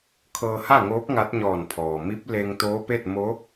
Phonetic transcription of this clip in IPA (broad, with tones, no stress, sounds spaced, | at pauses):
kʰ ɤː˧ h a˥˨ ŋ oː˧˥ p̚ ŋ a˧˥ t̚ ɲ ɔː˧˩ n pʰ ɔː˩ m i˧˥ p̚ l e˧ ŋ t̪ oː˧˥ p e˥˨ t̚ m o˧˥